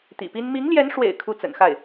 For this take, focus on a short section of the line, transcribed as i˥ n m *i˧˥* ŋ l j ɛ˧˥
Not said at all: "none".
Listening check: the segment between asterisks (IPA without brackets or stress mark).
i˧˥